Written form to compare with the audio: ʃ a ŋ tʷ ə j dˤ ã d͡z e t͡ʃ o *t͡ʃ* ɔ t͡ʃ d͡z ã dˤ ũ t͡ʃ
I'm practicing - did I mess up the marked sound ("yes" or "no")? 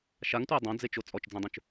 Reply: yes